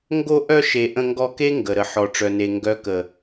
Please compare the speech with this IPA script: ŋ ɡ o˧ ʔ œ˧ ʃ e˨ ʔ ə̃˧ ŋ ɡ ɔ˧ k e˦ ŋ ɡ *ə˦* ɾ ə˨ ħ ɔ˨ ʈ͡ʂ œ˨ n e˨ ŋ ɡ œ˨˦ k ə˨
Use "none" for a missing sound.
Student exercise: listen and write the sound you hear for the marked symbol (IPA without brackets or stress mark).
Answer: ə˨